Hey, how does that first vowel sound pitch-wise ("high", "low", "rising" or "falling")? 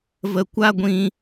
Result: low